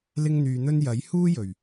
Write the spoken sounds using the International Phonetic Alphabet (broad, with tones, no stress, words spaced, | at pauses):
lɪ˥ŋn̪yː˧n̪ɵ˥n jɐ˨˥jhuː˥jɵ˨˩ɥ